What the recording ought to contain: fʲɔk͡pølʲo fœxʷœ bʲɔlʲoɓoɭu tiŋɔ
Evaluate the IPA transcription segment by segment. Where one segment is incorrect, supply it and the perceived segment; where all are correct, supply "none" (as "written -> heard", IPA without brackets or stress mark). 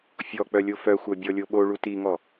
ø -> œ